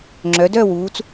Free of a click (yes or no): no